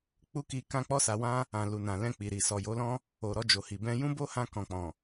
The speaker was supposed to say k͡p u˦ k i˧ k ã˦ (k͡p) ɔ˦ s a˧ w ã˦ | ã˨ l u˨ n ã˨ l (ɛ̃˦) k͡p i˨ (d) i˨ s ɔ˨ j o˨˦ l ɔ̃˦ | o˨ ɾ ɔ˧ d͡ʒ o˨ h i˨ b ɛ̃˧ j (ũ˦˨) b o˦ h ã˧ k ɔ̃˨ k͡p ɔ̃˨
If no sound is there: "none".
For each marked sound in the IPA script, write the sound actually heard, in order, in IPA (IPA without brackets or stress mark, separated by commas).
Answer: k͡p, ɛ̃˧, ɾ, ũ˦